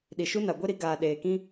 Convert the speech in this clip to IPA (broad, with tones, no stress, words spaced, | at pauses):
ɗi˨ʃu˦na˨ ɡʷe˦ɾi˨˦ ɡaː˨ ɗeː˨kĩ˦